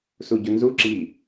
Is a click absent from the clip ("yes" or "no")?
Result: no